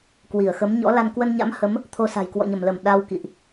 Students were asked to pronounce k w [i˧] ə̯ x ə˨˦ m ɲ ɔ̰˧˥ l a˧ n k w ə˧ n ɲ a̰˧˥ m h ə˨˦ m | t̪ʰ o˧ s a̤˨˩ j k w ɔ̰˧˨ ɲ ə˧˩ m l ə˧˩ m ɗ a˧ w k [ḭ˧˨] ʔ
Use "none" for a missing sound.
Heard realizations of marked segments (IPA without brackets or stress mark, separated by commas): i˧˩, ḭ˧˨